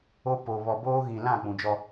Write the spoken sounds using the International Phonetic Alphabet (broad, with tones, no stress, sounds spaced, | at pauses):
o˦ p o˨ β ɔ˨ b oː˦ ɣ ĩ˨ l ã˦˨ k͡p ũ˨ d͡ʒ ɔ˦